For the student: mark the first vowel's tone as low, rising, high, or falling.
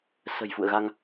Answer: low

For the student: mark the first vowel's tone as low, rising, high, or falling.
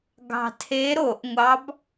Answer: low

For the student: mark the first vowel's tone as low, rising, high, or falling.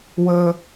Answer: high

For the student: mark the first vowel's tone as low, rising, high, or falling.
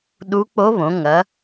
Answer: rising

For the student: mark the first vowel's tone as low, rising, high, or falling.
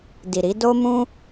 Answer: low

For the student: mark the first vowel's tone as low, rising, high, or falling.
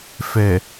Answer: low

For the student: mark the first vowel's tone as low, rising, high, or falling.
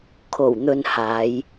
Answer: low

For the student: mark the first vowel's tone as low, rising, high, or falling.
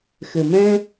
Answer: low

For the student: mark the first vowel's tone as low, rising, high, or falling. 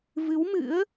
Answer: rising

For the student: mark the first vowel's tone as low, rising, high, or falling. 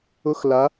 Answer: high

